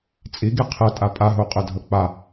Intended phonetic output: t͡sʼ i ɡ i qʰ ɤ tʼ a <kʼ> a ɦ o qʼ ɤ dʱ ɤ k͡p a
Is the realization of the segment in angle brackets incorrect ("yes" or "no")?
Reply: yes